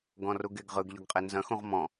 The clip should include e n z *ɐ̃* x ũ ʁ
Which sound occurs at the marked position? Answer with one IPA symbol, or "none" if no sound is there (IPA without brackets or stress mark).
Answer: ɐ̃